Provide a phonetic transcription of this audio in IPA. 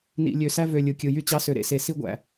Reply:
n ḭ˨ lʲ ø˨ s æ˦ v ø˨ lʲ ɯ˨ kʲ ɯ˨ j y˦ t͡ɕ ɑ˦ s ø˨ ɾ ḛ˦˨ s e˨ s i˦ ɡʷ æ̰˨

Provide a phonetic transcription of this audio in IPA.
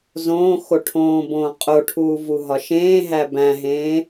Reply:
z õː x o ʈʰ õː b õː qʼ o ʈʰ uː v u ɦ ɒ ʃ ẽː ɦ æ b æ̃ ɦ ẽː

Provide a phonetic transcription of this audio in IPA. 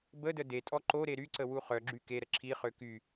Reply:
b ə d ə d e tʼ ɔ ǃ o ɾ e ɾ y ǀ ə w u χ œ ɡ͡ǁ y k e ɾ ə ǁʰ i χ ø k y

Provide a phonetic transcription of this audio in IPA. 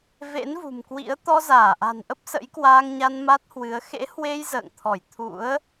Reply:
v ḛ˧˥ n v ṳ˨˩ m k w ḭ˧˥ ə̯ t̪ ɔ˧ z aː˧˩ ʔ a̤˨˩ n ʔ ə˦˥ p̚ s ə̰˧˥ j k w aː˧ ŋ ɲ a˧ n m a˦˥ t̚ h w ɨ˨˦ ə̯ x ḛ˧˥ h w e˧ j z ə̰ː˧˨ ŋ t̪ʰ ɔ˧˩ j t̪ʰ ṵ˧˥ ə̯

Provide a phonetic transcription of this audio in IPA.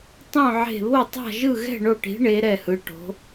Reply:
tˤ õ˥˧ ʕ e̤˥˧ β o˥˧ tˤ a̤˥˧ ʒ ɯ˥˧ ɣ ɛ̤˥˧ ɳ o˥˧ ʈ i̤˧˥ ɳ e˧˥ ɾ ɛ˥˧ h ɯ˧˥ ʈ o̤˧˥

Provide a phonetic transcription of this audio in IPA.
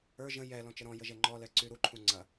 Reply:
ə˞ ʒ ə̃ j ɛ l ɔ̃ t͡ʃ ə ɾ ɔ̃ j ə ʒ ɛ ŋ͡ǃ ɔ l ɛ ǀ y ɾ u ǃʰ ũ ŋ͡ǀ ɐ

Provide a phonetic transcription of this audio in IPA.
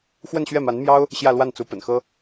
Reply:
x w ə˥˧ n ɕ ɥ ɛ˥˩ m a˧˥ n m j ɑ˥ ʊ̯ | ɕ j ä˥˧ l w a˥˩ n t͡s u˧˥ p ə̰˨˩ n x ɤ˥

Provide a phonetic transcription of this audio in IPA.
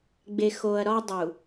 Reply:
ɡ͡b e˨ x o˨ ɐ̯ ɾ ɒ˦ dˤ u˨

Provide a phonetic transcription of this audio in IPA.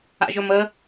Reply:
a̰ ʒ ɵ m ə

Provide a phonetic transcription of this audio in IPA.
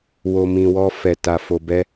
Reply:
w o˧ m ĩ˧ w ɔ˦ f ɛ˧ t a˧ f o˧ b ɛ˦

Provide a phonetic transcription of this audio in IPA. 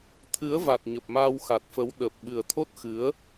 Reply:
t̪ʰ ɨ˨˦ ə̯ v a˨˩ t̚ ɲ ə˨˩ p̚ m aː˧ w x a˨˩ t̚ f ə˨˦ w ɗ ə˨˩ p̚ ɓ ɨ˨˩ ə̯ t̪ʰ o˦˥ t̚ x ɨ˨˦ ə̯

